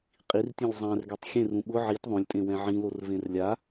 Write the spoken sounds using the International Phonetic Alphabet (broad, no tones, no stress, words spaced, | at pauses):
qʼirtʲẽlʲ zˤɛ̃rɡɛtˤ xʲẽrũ ɓʊ ʕit ðˤõlʲtʼẽwɛ̃ ʕĩlorvẽr lʲa